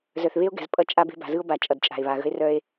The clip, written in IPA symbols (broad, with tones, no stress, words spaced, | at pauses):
zœ˨θβe˦o̯ɡɛ̤˨z pʼʌ˦t͡ʃʼa˦ be̤˦ba̤˨zɯ˦o̯ba˨ t͡ʃʼʌ˨dt͡ʃʼa̤˨e̯βa˨ɣə̤˦e̯ rœ˦e̯